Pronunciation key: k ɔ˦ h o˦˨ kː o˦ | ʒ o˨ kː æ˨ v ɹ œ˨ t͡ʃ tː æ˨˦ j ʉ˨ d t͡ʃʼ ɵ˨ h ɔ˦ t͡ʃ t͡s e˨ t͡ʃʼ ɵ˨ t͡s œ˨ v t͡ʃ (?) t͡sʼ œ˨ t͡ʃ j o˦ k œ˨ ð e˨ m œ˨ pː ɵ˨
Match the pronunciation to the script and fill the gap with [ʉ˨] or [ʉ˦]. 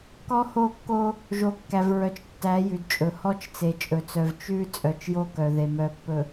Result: ʉ˦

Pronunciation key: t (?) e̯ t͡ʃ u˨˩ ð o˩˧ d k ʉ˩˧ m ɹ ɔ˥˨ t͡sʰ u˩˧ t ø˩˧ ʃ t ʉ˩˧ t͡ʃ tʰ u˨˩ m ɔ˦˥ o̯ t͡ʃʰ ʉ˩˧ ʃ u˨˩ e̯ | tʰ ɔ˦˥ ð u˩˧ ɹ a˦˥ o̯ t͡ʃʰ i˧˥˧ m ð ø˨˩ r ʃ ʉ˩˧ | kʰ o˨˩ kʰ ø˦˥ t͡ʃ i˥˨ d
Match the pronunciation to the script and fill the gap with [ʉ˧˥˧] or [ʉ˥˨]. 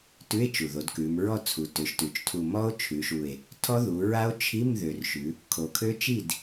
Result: ʉ˧˥˧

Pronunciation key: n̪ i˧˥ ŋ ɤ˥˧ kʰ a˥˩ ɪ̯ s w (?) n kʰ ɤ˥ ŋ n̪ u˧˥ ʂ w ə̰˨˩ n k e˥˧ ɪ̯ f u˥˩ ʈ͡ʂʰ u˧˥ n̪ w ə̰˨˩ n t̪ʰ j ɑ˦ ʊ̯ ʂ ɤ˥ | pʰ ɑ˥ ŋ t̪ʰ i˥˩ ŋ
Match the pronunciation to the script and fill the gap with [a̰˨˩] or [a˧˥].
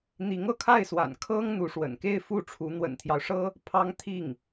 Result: a̰˨˩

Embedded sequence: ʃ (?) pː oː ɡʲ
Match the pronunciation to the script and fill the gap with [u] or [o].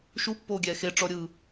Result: u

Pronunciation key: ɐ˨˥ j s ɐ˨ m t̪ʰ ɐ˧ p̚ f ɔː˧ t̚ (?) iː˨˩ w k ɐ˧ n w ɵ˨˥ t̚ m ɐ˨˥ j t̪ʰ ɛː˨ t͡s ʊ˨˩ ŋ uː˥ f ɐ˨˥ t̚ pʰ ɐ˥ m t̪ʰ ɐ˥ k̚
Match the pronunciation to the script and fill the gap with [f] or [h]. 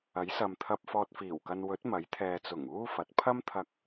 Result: f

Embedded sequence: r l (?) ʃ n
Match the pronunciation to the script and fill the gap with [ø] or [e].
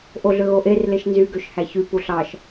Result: e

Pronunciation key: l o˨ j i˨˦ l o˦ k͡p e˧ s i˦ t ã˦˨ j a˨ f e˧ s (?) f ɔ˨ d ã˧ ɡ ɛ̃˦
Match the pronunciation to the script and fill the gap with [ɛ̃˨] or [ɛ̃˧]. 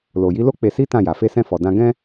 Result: ɛ̃˧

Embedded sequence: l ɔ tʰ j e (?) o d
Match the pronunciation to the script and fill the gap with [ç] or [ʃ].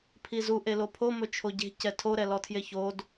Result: ç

